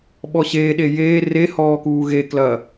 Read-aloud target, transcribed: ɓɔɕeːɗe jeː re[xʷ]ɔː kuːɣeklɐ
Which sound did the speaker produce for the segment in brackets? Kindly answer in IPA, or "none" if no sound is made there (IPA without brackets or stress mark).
h